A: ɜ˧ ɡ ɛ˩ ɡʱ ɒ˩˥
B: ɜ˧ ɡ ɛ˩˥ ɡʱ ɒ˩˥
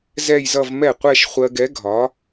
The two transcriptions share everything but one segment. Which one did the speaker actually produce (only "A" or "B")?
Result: B